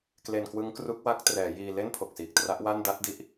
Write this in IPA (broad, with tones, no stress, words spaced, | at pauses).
kle˧nkwɯ˦˥ŋkru˦˥k̚wa˦˥k̚ trɛː˩˦jiː˧le˥˩n pʰo˨˩k̚siː˨˩k̚tra˦˥ʔ wa˥˩n da˥˩t̚di˦˥ʔ